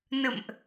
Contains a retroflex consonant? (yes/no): no